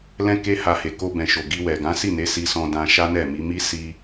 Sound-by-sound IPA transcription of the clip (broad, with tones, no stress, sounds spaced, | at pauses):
l ɛ̃˦ k e˦ h a˧ h e˨ k o˧ b ɛ̃˨ ʃ o˨ ɡ i˧ w ɛ˨ ɡ ã˨˦ s i˦˨ n e˨˦ s i˧ s ɔ̃˧ d ã˧ ʃ a˦ n ɛ˦˨ m i˨˦ m i˦ s i˧